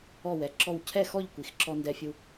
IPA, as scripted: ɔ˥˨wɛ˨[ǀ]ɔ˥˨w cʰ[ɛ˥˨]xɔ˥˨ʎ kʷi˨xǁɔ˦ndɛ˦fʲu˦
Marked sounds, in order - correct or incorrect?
incorrect, correct

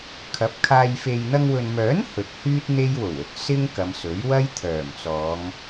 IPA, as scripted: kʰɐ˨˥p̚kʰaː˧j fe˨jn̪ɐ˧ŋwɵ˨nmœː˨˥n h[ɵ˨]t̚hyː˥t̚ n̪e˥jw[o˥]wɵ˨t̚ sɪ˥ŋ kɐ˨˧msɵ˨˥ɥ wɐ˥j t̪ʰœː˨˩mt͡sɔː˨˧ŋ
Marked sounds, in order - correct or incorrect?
correct, incorrect

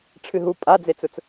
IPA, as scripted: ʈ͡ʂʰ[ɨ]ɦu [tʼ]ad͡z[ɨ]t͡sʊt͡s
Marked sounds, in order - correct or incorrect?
correct, incorrect, incorrect

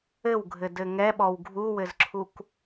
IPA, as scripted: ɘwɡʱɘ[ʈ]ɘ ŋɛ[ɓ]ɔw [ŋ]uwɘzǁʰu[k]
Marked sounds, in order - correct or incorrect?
incorrect, correct, incorrect, correct

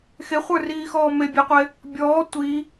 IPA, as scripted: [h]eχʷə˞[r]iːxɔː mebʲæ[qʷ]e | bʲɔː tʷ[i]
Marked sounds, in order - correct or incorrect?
incorrect, correct, correct, correct

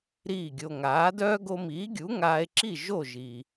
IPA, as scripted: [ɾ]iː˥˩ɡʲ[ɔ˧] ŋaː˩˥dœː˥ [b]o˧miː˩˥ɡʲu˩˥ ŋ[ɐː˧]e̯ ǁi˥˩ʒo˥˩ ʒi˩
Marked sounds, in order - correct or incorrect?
correct, incorrect, incorrect, incorrect

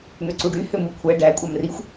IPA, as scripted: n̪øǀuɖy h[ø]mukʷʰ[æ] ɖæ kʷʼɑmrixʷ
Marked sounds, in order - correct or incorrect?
correct, correct

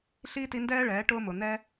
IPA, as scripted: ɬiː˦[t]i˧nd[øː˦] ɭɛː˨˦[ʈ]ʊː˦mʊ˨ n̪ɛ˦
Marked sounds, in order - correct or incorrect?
correct, incorrect, correct

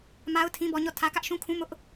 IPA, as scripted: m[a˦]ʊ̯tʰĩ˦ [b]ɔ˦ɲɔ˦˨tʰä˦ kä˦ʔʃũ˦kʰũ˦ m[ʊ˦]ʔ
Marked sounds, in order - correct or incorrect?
correct, correct, correct

